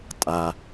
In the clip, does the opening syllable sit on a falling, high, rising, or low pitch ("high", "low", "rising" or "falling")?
low